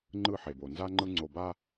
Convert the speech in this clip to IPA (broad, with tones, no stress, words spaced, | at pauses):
ŋ͡ǃɯ˦˨ħe˨bo˨ nza˦ŋ͡ǃɯ˦ ŋ͡ǀo˨ba˦